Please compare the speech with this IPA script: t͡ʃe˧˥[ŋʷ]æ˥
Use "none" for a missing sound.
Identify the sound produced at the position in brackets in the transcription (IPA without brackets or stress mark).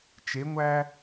ŋʷ